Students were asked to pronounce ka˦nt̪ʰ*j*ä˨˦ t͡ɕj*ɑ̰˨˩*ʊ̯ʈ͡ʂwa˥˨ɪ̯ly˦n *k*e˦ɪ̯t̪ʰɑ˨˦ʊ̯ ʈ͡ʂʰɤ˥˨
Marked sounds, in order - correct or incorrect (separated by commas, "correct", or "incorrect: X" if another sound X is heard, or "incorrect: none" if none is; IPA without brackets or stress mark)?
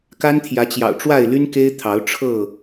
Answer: correct, correct, correct